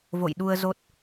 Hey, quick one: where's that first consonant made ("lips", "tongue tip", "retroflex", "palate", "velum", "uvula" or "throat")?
lips